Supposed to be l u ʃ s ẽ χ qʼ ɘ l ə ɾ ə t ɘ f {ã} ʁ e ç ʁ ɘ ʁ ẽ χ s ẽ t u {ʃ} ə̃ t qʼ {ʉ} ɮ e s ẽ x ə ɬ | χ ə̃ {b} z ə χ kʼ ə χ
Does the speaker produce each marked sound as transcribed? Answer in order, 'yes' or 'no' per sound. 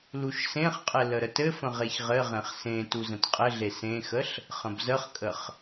no, no, no, yes

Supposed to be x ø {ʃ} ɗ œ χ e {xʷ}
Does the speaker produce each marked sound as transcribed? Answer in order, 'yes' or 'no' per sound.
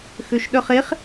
yes, no

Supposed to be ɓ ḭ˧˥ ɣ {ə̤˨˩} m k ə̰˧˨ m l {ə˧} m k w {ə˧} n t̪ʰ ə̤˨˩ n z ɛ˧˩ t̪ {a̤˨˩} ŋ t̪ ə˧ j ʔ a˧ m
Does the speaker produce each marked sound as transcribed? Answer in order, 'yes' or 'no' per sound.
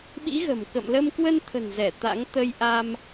yes, yes, yes, no

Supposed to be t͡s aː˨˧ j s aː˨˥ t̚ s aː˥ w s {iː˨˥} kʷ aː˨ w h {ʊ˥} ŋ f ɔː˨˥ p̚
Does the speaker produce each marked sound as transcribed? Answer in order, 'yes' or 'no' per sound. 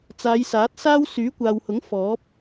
no, no

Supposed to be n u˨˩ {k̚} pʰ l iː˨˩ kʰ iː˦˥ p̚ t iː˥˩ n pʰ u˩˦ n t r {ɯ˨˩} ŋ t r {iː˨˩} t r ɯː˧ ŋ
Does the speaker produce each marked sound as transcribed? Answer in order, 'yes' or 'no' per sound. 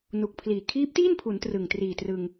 yes, yes, yes

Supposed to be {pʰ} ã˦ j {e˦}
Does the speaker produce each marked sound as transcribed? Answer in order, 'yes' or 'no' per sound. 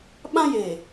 no, no

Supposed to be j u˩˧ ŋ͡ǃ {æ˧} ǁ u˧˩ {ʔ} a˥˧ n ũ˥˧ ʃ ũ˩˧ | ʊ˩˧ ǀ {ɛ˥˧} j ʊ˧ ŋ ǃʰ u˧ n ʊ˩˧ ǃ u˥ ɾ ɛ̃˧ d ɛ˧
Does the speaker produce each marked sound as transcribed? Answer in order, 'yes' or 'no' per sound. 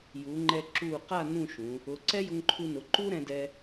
no, no, no

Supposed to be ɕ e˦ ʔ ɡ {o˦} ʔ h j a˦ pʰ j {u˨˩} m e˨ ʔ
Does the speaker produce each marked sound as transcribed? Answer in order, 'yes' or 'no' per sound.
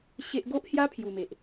yes, yes

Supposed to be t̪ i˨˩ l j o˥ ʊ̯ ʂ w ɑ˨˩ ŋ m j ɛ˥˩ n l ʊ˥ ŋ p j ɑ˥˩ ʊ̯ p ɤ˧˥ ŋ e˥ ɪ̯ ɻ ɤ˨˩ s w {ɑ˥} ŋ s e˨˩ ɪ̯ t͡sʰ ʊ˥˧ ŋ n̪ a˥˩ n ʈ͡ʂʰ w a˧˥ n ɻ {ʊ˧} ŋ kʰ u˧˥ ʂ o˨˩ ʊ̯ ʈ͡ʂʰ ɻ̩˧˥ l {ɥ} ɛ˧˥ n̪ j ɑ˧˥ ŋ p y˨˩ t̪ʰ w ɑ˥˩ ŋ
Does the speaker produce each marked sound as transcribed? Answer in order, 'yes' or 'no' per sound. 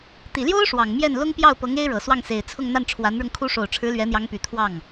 no, yes, yes

